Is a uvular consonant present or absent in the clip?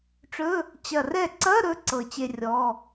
absent